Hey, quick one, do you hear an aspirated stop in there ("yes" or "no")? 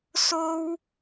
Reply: no